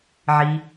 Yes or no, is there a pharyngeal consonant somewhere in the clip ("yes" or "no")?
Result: yes